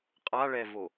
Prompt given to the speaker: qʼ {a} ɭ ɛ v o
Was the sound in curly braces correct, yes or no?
yes